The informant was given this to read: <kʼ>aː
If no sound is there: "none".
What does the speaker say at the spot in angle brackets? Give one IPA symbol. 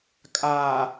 kʼ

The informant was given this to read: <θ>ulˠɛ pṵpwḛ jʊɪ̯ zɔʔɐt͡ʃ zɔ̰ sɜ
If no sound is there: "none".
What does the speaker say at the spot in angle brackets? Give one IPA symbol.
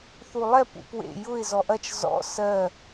θ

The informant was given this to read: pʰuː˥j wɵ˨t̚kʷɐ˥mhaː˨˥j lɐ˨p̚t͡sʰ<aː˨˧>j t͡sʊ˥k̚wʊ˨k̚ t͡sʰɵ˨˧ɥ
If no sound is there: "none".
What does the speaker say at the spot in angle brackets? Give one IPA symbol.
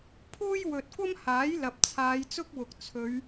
aː˨˧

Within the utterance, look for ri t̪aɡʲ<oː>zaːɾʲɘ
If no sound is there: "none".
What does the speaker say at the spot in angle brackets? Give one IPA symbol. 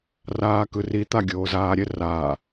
oː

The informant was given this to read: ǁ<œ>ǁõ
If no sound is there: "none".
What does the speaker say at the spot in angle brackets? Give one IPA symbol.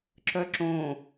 œ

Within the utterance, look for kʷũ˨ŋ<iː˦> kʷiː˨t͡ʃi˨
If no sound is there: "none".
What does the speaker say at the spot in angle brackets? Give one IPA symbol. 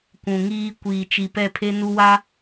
iː˦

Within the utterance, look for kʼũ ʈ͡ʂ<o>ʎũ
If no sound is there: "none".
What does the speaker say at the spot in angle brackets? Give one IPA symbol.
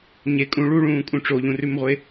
o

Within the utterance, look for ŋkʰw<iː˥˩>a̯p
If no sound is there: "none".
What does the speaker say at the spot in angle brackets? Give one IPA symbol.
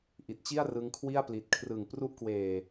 i˥˩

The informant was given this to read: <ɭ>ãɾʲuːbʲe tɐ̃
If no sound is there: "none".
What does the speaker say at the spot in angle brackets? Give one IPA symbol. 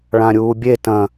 ɭ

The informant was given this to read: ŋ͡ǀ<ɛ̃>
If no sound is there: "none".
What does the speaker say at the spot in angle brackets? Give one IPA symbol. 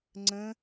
ə̃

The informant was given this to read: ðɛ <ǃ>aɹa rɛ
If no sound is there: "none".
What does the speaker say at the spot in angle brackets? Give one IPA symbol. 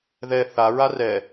θ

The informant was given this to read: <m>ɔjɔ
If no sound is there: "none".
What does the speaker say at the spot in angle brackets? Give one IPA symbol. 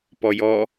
p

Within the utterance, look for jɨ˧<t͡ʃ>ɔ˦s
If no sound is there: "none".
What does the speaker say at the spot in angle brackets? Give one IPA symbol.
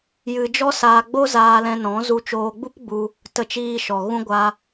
d͡ʒ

